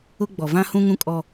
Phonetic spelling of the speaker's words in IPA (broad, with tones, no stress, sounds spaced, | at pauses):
ʊ˦ ɡ͡b ɔ˨ v ã˦ h ũ˦ ŋ ũ˦ kʼ ɔ˦